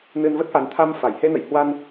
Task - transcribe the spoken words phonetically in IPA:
nɨ˧n və˦˥t̚ʔa˨˦n t̪ʰa˧m fa˧˩jhe˧nə̰˧˨jhwa˧n

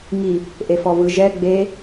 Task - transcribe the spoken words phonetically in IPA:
ŋi | ʔefɔvɯ ʒɛ ɡ͡be

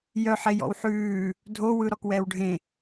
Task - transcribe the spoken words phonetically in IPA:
jœħejɔ̰w ħʉː | dʱowɯ ɾɔkwɛːwɖʱẽ

